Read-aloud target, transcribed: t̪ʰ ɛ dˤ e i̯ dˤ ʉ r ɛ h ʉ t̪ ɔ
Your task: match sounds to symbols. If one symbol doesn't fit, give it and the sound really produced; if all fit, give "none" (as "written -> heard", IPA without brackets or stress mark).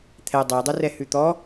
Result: none